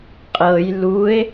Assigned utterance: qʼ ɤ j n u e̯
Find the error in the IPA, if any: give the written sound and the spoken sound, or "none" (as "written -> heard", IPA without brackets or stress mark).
n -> l